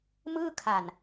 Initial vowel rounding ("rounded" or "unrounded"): unrounded